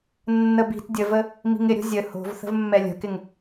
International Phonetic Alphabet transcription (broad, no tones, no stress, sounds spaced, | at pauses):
nː ə b i̤ t dʲ ə v ə | m i̤ ŋ ɪ ɾʲ o̤ zʲ ə h o̤ v θ ə̤ v mː ɛ lʲ ə̤ k ɪ ŋ